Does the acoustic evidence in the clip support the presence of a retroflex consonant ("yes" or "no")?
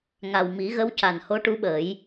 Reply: yes